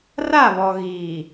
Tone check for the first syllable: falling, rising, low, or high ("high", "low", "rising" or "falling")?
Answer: falling